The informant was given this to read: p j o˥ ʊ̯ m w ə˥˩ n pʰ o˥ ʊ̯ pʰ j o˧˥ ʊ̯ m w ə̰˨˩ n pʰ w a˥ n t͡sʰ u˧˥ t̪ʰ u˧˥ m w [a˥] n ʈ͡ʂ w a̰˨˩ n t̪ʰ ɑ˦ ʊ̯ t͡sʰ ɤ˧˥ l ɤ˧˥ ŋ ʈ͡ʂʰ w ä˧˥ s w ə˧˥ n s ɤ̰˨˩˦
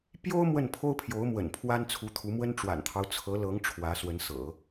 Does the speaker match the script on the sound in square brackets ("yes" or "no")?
no